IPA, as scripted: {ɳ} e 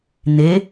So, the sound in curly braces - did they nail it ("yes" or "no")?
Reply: no